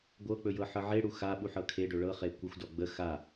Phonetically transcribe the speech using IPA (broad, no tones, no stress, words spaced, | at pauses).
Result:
ɡʷɤk͡pɵjɤ ħɤʕeɽu xaɓu ħɤkʰe ɖɵɭɤ χekʷəxʷdɔ ɡ͡bə xa